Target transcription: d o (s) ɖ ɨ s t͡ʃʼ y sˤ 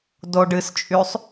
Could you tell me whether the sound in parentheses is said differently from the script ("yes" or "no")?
yes